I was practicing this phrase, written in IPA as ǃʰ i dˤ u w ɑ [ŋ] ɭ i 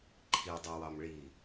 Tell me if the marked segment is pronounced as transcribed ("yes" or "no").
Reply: no